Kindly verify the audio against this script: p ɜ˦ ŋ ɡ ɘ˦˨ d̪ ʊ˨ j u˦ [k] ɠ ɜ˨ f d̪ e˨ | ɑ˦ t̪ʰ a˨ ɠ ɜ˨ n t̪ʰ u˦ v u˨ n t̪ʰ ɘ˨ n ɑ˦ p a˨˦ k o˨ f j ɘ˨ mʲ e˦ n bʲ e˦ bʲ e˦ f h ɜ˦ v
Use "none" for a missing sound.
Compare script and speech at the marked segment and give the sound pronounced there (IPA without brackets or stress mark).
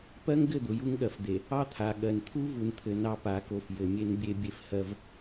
ŋ